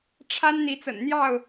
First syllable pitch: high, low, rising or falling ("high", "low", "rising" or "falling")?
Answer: high